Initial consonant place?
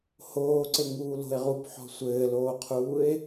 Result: glottal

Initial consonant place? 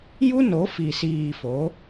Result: palatal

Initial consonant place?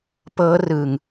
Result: labial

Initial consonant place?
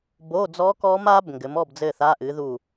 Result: labial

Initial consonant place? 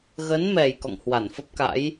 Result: velar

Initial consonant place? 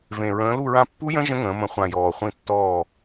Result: labial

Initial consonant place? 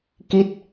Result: velar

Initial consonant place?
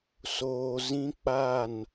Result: alveolar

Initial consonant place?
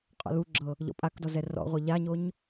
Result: uvular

